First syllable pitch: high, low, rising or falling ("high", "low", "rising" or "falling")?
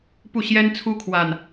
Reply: falling